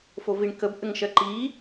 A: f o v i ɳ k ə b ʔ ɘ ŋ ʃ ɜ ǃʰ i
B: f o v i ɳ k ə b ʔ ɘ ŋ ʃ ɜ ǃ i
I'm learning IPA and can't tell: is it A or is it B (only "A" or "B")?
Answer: B